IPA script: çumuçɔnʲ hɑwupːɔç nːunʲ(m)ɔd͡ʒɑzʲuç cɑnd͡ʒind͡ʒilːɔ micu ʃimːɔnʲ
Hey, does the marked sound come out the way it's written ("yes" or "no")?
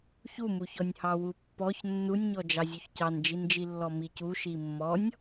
no